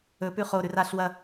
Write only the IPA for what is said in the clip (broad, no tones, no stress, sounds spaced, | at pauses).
ɵ p ʉ χ o ɾ ʉ r a ɬ w ɐ